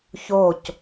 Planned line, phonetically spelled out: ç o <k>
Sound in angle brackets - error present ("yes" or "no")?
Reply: yes